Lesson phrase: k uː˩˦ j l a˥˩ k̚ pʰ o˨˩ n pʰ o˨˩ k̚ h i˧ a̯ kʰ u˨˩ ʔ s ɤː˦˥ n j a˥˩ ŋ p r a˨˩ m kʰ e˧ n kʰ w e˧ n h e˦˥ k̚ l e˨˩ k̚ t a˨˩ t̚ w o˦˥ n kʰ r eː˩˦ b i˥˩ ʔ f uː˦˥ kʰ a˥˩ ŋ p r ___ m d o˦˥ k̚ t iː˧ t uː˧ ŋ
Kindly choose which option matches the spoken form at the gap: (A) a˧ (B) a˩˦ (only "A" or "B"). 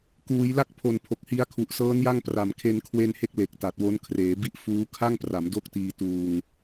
B